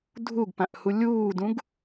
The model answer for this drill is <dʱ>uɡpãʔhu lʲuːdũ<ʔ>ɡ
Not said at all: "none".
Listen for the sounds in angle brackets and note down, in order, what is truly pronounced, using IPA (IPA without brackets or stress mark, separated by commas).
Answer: dʱ, none